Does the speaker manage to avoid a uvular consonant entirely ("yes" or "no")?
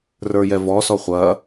no